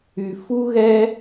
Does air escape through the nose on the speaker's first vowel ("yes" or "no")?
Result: no